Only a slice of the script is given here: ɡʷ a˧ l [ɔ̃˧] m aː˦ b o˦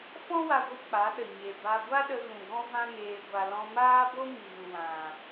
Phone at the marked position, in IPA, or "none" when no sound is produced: ɔ̃˧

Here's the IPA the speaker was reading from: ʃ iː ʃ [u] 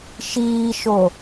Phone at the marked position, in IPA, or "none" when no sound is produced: o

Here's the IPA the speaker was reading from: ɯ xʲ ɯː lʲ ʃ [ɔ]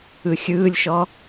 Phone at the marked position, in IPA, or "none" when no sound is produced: ɔ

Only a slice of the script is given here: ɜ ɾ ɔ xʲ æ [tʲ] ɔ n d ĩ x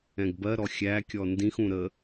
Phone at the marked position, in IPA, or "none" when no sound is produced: kʲ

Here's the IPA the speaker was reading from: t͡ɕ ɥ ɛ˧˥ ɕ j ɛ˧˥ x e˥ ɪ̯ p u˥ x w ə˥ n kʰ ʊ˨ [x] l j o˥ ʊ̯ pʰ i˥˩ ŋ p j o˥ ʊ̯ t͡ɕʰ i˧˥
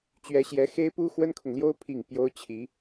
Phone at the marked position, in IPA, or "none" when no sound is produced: ŋ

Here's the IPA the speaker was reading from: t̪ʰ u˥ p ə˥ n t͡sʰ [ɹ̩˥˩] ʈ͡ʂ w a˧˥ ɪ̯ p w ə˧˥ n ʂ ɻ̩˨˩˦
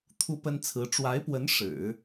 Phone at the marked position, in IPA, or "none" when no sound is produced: ɹ̩˧˥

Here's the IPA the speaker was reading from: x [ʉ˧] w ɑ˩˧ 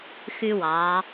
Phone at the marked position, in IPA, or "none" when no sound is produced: ʉ˧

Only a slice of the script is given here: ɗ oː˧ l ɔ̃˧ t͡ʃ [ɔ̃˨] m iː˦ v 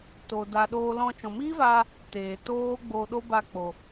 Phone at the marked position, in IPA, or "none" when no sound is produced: ɔ̃˨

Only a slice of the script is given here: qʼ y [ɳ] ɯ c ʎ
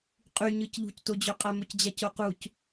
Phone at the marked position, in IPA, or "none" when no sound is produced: ɲ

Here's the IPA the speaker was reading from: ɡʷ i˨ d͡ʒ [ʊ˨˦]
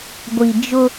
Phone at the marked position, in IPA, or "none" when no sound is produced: ʊ˦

